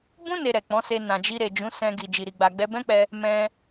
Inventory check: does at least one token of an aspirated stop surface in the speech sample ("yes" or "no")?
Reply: no